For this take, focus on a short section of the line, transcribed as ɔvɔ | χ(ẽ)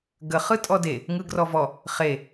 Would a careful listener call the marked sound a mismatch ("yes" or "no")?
yes